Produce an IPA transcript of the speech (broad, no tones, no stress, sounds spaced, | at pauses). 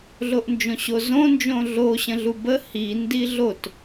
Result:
ɮ o ʔ n d͡ʒ õ ɕ o z õ n d͡ʒ õ ɮ o ɕ ə̃ ɮ u b ə h i n d i ɮ o t